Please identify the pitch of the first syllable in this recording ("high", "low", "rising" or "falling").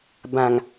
low